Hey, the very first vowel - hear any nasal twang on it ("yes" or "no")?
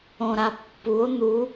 yes